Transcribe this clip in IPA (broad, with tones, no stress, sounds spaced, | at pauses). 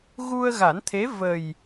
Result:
ɣ u˧ ə̯ ɣ a˨˩˦ n t̪ʰ e˧˥ v ə˨˩ j